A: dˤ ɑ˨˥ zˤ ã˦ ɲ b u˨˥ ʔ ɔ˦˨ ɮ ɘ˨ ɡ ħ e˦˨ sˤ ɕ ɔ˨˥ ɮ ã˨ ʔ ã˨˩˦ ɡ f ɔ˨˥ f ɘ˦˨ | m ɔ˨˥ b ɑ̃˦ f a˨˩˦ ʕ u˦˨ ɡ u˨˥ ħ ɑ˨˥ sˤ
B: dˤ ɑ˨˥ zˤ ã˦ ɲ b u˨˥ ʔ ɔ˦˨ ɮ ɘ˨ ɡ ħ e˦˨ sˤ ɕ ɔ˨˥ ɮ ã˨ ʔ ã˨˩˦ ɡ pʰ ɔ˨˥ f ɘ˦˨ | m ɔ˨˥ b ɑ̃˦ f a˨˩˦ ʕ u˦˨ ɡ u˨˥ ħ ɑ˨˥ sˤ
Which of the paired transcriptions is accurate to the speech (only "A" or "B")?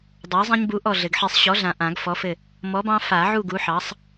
A